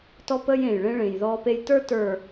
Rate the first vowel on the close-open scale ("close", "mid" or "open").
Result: mid